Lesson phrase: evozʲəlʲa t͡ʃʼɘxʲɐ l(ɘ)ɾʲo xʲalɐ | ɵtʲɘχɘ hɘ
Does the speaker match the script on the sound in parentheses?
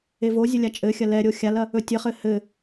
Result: no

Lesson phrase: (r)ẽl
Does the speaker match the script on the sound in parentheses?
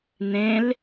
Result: no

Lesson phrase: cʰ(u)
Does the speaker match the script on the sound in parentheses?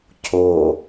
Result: no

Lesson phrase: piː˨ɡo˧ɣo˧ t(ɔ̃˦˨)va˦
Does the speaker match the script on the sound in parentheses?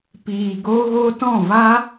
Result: yes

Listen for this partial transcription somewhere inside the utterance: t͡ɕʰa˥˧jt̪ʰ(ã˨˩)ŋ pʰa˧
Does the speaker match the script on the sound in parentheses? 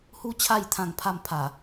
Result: no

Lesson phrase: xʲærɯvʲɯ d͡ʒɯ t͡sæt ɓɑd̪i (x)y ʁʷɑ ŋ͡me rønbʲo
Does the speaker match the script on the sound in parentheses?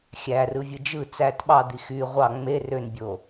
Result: yes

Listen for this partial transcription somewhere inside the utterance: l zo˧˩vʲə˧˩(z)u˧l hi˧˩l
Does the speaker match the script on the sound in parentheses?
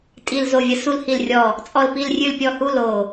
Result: no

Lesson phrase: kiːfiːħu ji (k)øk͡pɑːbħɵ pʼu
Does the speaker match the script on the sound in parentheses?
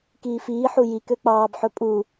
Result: yes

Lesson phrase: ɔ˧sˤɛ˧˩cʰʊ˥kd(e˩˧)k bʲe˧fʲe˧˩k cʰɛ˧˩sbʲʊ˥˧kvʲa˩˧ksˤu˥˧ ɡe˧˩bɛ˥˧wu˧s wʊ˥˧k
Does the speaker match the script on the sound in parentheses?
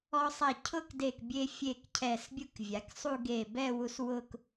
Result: no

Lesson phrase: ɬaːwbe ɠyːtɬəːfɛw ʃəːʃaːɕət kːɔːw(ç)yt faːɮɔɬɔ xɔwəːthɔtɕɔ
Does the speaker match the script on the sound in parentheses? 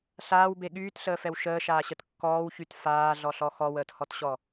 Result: yes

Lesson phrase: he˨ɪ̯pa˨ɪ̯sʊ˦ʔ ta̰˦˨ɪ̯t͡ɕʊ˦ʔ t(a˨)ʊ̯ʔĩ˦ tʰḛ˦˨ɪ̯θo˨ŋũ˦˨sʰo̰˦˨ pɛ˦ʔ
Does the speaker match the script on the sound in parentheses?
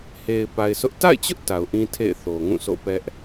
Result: yes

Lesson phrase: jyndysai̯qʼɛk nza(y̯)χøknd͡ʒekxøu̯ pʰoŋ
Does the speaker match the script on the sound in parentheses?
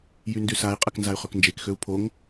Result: yes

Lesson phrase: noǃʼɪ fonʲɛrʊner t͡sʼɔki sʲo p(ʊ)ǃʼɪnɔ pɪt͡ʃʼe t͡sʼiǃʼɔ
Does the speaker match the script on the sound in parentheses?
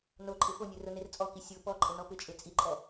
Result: no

